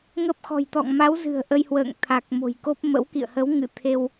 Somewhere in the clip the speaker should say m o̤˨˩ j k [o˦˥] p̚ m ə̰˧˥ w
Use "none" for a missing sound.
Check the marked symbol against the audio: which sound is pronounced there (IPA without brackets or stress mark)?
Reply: o˦˥